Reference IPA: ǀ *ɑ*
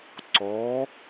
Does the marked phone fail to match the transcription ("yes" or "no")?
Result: yes